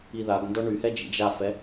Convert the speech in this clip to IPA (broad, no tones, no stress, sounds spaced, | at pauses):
i ð a ɡ n d ɔ ɳ y h ɛ d͡ʒ ḭ d͡ʒ a f ɛ